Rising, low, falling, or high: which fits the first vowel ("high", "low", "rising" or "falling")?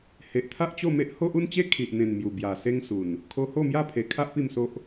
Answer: low